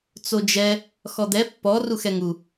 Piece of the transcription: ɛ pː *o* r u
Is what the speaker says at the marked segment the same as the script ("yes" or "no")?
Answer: no